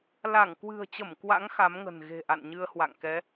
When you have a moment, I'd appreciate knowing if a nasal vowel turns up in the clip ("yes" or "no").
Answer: no